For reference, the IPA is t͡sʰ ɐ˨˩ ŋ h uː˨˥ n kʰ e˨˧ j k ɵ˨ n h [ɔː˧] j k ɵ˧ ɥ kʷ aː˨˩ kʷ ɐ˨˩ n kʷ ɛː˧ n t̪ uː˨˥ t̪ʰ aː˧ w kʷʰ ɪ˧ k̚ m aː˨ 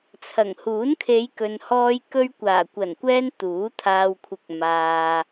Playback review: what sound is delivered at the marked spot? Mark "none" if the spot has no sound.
ɔː˧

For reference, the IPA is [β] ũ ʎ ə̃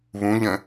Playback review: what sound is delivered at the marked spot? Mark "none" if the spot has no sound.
β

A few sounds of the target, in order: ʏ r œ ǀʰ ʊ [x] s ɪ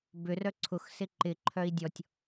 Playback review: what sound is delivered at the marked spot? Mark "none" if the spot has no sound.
x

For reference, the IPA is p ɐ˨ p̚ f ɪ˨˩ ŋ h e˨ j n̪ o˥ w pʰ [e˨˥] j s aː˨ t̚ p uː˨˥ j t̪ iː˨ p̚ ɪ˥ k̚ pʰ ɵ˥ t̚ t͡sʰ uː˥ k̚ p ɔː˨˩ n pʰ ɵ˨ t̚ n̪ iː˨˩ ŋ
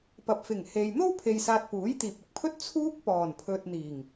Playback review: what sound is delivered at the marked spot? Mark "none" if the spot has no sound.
e˨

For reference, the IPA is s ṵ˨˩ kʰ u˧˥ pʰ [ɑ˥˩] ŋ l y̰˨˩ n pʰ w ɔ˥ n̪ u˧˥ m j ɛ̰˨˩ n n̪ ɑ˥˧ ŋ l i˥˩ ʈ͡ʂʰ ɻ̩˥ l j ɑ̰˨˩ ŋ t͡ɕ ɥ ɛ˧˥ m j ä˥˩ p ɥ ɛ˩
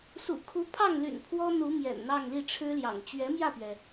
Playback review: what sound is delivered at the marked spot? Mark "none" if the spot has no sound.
ɑ˥˩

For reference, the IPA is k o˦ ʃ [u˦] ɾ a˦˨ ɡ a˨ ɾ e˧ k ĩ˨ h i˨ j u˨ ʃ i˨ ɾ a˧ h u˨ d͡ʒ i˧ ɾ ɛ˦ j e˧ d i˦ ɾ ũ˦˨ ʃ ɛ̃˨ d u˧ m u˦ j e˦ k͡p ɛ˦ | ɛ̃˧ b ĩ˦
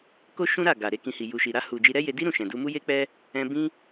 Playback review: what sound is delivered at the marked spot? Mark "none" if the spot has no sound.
ũ˦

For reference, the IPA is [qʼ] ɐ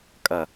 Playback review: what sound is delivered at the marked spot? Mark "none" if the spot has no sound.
kʼ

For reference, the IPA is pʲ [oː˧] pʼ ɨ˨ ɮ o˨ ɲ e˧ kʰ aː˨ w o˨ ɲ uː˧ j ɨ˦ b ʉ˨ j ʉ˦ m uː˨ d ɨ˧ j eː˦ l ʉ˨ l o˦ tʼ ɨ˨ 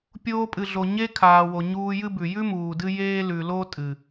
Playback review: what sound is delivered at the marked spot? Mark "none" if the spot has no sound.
oː˧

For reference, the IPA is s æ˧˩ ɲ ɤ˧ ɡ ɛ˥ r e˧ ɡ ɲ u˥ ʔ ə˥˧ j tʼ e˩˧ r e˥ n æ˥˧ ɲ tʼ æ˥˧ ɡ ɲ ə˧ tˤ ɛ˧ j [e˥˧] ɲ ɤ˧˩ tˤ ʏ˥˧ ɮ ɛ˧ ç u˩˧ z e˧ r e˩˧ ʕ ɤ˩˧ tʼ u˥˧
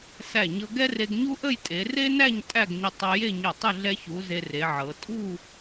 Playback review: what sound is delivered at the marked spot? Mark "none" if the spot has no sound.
e˥˧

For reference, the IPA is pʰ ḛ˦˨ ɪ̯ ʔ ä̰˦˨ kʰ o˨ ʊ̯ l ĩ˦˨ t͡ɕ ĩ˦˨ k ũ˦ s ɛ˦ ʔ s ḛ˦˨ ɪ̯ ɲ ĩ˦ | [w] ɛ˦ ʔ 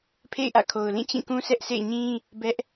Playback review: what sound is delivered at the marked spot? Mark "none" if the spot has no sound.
b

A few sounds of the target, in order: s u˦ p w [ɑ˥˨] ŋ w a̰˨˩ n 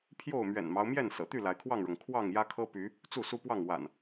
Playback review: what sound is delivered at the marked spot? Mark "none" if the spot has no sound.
ɑ˥˨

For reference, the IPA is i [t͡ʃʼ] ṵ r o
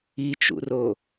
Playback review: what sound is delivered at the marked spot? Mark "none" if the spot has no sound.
t͡ʃ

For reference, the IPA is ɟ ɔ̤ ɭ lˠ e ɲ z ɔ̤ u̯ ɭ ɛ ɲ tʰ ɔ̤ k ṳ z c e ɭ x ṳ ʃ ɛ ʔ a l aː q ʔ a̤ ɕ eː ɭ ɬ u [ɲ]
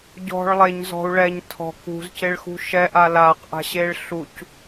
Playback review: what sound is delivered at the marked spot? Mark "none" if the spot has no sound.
c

